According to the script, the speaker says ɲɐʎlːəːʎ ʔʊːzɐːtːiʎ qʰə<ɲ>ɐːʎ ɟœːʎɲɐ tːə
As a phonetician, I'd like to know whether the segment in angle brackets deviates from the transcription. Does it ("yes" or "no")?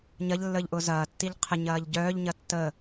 no